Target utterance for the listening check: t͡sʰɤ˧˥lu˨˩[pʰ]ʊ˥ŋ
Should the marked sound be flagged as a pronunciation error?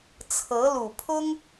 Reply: no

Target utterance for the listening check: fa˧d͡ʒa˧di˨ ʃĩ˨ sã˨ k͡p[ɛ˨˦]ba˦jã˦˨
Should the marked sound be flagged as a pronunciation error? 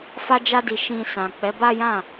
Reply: no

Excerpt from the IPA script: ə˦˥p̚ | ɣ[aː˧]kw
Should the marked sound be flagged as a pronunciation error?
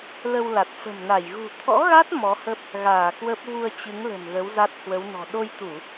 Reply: yes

